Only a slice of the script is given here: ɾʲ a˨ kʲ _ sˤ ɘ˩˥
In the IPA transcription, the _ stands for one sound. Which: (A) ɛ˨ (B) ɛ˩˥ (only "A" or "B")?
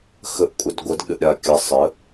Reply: A